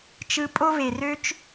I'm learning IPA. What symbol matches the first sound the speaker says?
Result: t͡ʃ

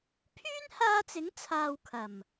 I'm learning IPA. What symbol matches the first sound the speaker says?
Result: pʰ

